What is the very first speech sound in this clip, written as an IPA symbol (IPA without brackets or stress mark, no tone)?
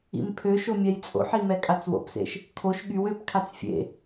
ḭ